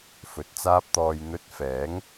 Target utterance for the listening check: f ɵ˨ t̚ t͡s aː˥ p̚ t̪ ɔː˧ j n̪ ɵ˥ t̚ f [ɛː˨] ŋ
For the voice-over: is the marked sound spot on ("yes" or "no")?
no